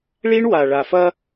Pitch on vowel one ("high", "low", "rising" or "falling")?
high